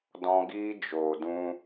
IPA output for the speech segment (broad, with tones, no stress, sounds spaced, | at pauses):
d ɔ̃˧ ɡ iː˦ d͡ʒ oː˨ d ũ˧